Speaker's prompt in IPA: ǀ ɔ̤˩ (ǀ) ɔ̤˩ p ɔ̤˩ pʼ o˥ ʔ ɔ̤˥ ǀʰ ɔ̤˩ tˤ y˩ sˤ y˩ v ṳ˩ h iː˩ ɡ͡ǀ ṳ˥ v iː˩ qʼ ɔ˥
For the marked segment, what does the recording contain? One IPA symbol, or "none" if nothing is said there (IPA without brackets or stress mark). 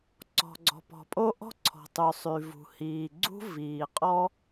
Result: ɡ͡ǀ